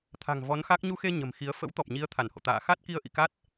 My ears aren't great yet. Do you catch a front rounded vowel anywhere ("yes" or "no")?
no